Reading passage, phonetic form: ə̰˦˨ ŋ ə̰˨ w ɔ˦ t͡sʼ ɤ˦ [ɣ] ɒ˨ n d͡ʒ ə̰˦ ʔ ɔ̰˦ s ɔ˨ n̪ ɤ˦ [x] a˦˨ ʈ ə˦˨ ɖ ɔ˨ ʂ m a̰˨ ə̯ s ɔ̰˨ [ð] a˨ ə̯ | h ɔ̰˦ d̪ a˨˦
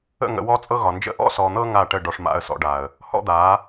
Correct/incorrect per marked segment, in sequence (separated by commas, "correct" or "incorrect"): correct, incorrect, incorrect